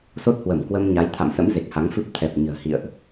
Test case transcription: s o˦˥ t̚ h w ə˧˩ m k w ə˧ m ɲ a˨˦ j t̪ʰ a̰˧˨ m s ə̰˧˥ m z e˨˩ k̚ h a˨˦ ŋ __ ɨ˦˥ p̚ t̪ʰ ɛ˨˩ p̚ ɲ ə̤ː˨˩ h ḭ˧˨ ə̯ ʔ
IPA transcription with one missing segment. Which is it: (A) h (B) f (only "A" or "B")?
B